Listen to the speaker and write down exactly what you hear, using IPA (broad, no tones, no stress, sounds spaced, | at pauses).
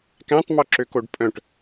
k æ̃ tˤ m ɔ ǁ ø k o ɖ pʼ œ̃ ʈ